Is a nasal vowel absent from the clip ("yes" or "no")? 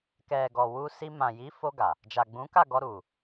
no